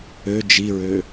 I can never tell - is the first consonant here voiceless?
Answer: no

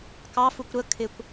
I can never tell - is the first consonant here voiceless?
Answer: yes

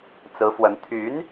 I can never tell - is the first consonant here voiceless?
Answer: yes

